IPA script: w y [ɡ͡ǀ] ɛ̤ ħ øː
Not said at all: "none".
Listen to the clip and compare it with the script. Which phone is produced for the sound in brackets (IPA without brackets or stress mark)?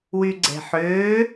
ɡ͡ǀ